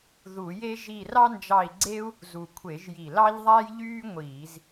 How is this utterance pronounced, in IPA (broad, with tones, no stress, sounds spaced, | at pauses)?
ð u˧˩˧ j e˥ ʒ i˦˨ r ɑ˥ n d͡ʒ ɑ˦˨ i̯ ɡ͡ǀ e˥ u̯ | z u˨˩ kʷʰ e˧˩˧ ʒ j i˨˩ l ɑ˥ ʎ ðˤ æ˥ j ʎ yː˥ ŋʷ iː˧˩˧ z